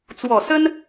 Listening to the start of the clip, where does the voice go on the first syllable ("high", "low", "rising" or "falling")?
low